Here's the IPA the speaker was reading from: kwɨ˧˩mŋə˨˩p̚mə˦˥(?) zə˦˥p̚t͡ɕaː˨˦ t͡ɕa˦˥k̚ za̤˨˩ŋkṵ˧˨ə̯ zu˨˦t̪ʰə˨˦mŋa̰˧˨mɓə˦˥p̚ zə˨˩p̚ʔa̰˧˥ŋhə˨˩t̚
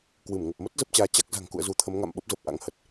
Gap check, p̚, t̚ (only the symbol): t̚